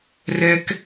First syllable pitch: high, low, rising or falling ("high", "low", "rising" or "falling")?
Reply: high